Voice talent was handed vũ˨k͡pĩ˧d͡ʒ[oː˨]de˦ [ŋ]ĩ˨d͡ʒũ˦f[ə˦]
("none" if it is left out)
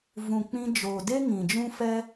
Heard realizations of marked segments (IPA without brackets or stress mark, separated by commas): oː˨, ŋ, ɛ˦